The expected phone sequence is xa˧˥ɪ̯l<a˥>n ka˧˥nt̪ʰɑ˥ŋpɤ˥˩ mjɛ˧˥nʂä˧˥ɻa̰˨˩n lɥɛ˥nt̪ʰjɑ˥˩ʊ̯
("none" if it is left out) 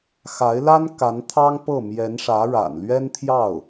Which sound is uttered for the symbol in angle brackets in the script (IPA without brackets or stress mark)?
a˥